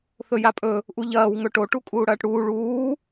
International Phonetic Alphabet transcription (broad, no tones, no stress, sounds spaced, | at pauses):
θ ɵ j a pʼ ɵ | ʔ u ʎ ɐː w ŋ ɵ ʈ o ʈ u kʼ uː ɽ ɐː ʈ ɽ uː ɭ uː